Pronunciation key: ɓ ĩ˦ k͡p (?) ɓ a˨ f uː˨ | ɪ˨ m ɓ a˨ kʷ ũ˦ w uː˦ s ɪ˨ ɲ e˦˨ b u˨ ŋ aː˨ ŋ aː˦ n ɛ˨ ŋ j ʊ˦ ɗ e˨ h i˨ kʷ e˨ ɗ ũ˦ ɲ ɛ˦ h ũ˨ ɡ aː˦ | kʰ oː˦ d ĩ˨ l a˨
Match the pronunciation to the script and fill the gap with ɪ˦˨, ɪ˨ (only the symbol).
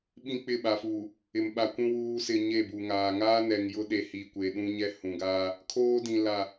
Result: ɪ˦˨